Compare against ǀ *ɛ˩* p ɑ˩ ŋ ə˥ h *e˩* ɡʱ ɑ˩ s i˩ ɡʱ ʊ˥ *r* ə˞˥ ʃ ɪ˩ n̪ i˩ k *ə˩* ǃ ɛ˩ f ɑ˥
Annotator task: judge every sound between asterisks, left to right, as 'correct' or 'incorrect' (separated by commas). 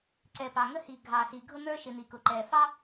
correct, incorrect, incorrect, incorrect